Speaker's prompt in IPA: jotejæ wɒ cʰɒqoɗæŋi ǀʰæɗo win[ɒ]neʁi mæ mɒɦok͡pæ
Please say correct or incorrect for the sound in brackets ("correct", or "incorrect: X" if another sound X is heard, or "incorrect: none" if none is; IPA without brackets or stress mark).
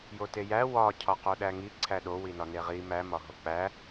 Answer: correct